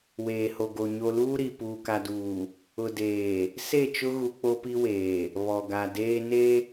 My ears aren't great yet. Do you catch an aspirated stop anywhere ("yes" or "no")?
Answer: no